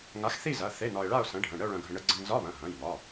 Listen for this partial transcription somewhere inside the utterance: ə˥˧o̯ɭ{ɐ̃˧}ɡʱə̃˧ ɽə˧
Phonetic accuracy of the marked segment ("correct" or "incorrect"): correct